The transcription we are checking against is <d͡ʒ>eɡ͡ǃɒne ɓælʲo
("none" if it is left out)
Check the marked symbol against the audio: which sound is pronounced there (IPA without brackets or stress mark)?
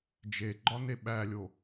d͡ʒ